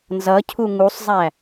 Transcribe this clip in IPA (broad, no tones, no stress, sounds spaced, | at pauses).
n z ʌ cʰ u ŋ u sˤ zˤ æ